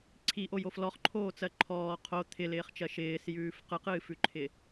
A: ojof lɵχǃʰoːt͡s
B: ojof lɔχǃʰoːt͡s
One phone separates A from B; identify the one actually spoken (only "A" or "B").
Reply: B